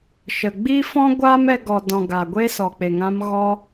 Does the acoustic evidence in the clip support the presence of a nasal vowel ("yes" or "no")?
yes